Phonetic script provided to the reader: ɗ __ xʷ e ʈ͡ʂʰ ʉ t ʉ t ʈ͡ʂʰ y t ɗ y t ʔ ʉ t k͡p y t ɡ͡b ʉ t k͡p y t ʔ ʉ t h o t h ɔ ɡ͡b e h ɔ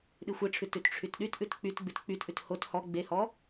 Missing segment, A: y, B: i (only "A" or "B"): B